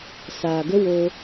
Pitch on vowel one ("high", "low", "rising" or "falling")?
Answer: low